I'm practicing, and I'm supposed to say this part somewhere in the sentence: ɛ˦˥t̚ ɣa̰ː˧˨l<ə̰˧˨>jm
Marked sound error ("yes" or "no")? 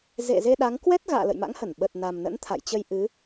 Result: no